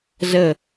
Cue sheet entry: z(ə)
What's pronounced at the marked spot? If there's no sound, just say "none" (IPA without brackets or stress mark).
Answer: ə